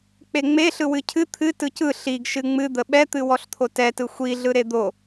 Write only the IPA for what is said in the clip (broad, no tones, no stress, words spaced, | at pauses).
k͡peŋ͡me ɬɯwɨcʰɨ t̪ʰɨ tɯcɯ ɬiɡ ʃɨŋ͡mɨd̪ə ɓɛt̪ɨ wɔɬt̪ʰotɛtɯ xʷiɮɯ ɾed̪o